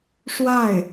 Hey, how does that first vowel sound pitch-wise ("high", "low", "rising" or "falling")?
falling